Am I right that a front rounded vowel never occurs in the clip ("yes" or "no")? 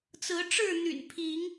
no